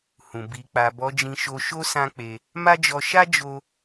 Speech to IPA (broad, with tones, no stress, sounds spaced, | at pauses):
h ũ˨ b i˨ k͡p a˨ b ɔ˨˦ d͡ʒ ĩ˧ ʃ o˧ ʃ o˦ s ã˦ k͡p e˧ | m a˦ d͡ʒ ɔ˧ ʃ a˦ d͡ʒ o˧